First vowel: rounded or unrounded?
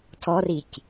rounded